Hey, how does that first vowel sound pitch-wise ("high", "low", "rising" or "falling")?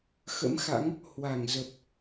rising